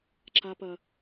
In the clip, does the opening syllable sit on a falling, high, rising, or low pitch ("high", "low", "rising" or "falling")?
high